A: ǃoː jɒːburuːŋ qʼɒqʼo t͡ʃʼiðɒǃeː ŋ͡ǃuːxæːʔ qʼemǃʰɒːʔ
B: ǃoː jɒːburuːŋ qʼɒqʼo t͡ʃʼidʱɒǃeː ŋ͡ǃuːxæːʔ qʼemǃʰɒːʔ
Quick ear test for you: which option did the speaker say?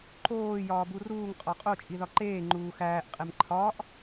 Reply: A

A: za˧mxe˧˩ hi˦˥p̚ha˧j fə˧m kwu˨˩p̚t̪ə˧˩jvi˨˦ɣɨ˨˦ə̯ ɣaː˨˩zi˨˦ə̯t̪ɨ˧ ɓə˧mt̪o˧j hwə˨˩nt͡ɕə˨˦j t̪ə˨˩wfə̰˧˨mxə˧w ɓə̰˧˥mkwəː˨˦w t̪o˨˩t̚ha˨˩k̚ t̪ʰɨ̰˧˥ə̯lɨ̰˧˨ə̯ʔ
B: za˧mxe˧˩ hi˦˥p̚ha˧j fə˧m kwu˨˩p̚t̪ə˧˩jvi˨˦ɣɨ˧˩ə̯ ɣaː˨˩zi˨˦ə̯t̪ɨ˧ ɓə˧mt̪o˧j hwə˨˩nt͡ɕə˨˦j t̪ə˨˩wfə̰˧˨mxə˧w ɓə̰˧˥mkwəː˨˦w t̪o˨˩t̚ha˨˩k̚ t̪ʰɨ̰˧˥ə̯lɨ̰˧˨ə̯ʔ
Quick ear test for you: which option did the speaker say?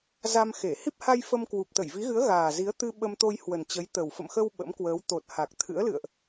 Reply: A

